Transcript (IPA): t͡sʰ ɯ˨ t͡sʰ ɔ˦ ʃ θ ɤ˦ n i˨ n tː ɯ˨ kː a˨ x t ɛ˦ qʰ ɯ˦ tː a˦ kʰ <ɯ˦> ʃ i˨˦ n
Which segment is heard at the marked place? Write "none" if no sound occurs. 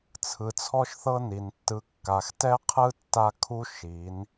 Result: u˦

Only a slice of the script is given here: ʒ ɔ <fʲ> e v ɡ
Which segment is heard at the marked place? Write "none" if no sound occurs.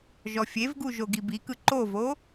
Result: fʲ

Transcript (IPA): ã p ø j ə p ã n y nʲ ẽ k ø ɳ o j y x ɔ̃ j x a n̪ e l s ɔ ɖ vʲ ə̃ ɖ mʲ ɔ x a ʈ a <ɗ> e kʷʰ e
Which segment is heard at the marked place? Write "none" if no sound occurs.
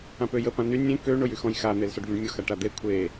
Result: d̪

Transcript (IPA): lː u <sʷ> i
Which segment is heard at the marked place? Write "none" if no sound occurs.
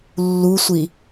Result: sʷ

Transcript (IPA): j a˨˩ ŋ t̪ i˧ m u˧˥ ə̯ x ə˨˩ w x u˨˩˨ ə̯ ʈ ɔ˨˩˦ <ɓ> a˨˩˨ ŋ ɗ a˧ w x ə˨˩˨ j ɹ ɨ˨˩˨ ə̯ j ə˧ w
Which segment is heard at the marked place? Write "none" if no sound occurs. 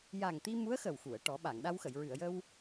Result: ɓ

